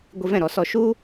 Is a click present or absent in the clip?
absent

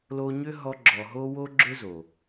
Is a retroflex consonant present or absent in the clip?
absent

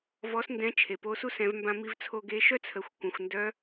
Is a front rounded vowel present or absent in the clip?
present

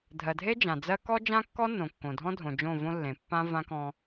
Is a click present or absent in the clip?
absent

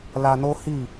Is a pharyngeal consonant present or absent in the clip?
absent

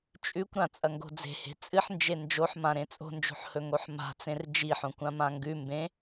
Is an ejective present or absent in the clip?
present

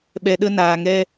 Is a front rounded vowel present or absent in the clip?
absent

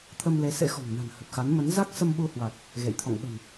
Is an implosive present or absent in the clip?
present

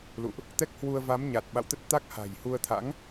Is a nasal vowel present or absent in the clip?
absent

